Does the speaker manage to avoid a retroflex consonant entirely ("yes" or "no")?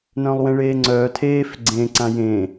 no